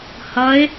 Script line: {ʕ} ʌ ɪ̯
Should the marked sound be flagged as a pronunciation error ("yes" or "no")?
yes